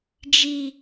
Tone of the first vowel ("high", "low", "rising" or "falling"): high